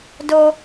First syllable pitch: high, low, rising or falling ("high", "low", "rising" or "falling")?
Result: high